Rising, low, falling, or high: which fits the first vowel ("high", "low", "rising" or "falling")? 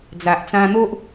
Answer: low